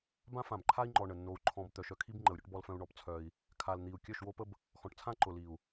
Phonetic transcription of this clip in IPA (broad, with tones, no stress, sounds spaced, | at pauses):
b ã˦ f ã˨ b ǃʰ a˦ i̯ ŋ͡ǃ ɔ˨ ɳ ə˨ nː o˧ u̯ ǃʰ ɔ̃˧ b t̪ œ˨ ʃ œ˧ kʰ i˦ b ŋ͡ǃ ə˨ u̯ ɾʲ ʊ˦ ʈ b ɔ˧ l f œ̃˧ u̯ ɳ ɔ˧ p t͡sʰ œ˧ i̯ | kʰ a˨ l n̪ i˨ u̯ kʲ œ˦˨ ʃ w o˦ p ə˦ b | x ɔ̃˨ ʈ t͡sʰ ã˦ ǃ ʊ˨ l i˨ u̯